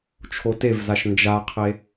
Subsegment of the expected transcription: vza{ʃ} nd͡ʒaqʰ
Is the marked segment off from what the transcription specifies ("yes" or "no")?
no